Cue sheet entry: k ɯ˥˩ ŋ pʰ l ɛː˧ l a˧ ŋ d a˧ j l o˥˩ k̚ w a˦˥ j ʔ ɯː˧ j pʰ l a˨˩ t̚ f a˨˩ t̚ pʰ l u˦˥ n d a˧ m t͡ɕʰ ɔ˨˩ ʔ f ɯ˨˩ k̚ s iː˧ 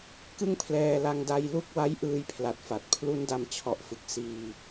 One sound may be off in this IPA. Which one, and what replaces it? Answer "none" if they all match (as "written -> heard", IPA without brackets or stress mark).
o˥˩ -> u˥˩